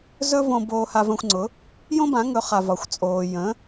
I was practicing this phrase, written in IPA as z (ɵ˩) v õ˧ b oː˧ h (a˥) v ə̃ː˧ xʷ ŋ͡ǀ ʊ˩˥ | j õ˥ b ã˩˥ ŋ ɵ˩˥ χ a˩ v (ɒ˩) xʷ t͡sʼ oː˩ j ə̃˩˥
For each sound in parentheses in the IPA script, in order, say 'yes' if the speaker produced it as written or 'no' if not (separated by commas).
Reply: no, no, yes